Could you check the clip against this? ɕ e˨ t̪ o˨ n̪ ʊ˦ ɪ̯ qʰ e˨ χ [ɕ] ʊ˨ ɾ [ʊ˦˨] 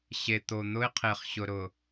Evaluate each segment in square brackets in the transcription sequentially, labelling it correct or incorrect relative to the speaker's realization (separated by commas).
correct, incorrect